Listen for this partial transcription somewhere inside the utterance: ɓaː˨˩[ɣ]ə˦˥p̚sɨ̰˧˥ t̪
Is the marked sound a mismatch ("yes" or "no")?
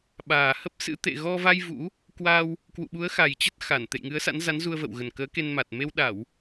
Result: yes